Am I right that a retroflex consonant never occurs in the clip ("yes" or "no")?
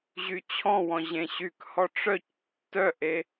no